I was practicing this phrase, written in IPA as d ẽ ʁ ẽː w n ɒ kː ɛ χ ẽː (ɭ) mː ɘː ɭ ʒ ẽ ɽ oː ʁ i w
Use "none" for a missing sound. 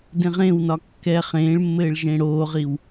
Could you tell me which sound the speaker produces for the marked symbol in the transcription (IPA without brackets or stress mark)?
ɭ